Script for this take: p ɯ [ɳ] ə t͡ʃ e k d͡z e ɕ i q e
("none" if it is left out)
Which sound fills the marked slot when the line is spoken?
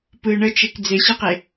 ɳ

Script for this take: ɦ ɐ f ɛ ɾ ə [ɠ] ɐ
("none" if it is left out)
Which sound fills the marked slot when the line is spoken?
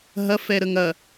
ŋ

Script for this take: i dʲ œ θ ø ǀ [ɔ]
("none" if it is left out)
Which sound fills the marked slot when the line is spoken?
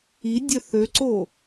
o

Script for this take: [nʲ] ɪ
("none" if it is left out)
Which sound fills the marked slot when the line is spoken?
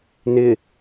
n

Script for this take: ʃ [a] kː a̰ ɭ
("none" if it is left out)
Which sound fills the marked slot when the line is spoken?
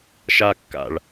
a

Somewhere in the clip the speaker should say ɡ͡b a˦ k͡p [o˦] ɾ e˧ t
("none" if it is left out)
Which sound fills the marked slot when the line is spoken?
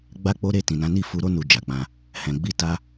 o˦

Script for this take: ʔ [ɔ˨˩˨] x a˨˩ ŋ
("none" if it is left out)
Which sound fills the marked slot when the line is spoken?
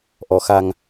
ɔ˨˩˨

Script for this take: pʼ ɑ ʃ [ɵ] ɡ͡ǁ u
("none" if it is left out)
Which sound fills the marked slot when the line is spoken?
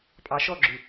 ɔ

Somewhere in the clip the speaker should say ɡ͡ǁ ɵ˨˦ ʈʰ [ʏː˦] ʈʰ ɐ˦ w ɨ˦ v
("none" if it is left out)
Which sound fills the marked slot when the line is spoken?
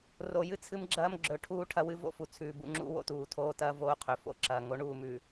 uː˦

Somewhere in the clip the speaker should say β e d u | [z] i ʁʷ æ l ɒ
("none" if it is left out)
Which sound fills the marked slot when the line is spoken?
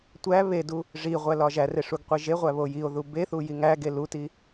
ʐ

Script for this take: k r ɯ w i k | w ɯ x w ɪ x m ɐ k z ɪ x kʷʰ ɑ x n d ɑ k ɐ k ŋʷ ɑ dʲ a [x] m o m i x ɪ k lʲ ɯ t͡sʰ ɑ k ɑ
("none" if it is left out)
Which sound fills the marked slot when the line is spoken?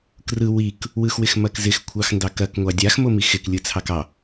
x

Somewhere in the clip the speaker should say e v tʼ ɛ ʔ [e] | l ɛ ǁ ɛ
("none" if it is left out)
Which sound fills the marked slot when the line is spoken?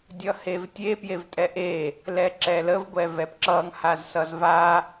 e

